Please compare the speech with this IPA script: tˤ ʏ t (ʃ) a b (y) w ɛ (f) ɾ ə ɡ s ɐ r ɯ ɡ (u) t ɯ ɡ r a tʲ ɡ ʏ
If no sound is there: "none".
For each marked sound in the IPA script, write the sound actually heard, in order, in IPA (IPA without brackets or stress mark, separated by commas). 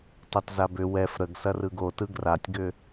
z, ʏ, f, o